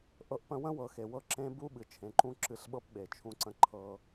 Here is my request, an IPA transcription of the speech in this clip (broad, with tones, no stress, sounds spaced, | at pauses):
ʔ ɤ˨ ʔ p ə̃˨ w ə̃˦ w ɤ˨ x e˨ w ɤ˦ ǁ ẽ˦ b u˦ ɓ ɨ˨ t͡ʃʰ ẽ˨ ǃ ũ˦ ǁ ɨ˨ ɬ ɓ ɤ˦ p ɓ e˨ t͡ʃʰ ũ˦ ǀ ə̃˦ ǃʰ ɤ˦